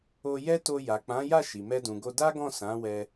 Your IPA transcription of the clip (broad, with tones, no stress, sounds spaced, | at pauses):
o˧ j ɛ˦ t o˧ j a˨ k͡p ã˨˦ j a˦˨ ʃ i˨ m ɛ˧ d ũ˨ ɡ o˧ d a˦ ɡ ɔ̃˦˨ s ã˨˦ w ɛ˧